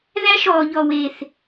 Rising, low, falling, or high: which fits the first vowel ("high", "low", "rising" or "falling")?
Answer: high